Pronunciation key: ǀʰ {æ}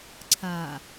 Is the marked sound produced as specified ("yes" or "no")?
no